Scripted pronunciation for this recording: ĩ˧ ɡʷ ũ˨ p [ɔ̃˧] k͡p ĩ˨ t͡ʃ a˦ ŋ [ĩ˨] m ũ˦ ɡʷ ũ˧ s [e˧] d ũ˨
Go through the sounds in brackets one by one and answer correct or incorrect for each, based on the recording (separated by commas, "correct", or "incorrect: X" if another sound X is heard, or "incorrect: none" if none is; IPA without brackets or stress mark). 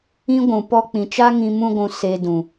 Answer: incorrect: ɔ˧, incorrect: ĩ˧, correct